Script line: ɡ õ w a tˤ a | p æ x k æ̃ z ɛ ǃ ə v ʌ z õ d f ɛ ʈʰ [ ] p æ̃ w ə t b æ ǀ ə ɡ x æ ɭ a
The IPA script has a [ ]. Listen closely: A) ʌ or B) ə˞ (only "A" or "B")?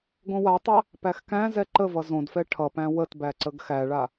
A